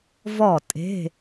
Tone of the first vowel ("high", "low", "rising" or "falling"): falling